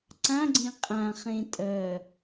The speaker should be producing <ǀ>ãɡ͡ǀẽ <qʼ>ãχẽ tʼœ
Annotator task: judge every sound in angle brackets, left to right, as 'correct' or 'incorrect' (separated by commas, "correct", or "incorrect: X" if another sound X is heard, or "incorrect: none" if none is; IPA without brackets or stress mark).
correct, correct